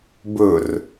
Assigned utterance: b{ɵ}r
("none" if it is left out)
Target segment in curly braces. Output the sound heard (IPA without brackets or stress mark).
ɵ